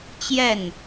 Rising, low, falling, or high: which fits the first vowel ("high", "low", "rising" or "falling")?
falling